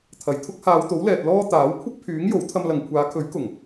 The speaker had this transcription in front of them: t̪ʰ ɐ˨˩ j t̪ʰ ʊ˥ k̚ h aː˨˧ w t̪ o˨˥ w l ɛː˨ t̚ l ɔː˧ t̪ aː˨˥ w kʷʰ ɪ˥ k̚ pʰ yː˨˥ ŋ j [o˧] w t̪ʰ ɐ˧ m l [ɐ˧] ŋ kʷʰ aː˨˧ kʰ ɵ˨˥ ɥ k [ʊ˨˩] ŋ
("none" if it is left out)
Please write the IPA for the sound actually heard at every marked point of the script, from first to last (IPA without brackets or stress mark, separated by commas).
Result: o˨˥, ɐ˨, ʊ˨˩